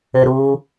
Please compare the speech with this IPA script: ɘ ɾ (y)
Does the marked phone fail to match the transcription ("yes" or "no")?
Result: yes